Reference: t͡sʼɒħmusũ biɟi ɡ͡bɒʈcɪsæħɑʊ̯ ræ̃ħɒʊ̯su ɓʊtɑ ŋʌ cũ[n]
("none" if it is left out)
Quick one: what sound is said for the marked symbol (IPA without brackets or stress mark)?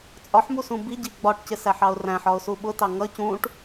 ʈ